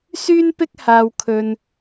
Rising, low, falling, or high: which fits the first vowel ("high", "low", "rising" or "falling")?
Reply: high